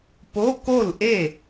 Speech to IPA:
po˧˥˧ko˥˩lʔe˥˩

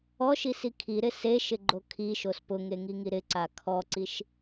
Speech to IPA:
ɔʃisi kʰiɾɪ seʃɪɡ͡ǃo kʰiʃos pʊŋeŋiŋi ɾɪǀa kʰɔǀiʃ

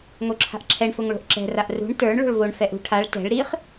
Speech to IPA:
ŋoǁʰa̤ʔǁʰɛɳ fʊŋɭo̤ʔǁɛ̤ raʔrṳɳ tə˞ɳ ɭo̤ɭvoɳ fɛʔṳ ʈʰaɭ tɛ̤ɭ ɾiχ

